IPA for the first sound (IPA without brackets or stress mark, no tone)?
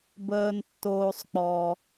b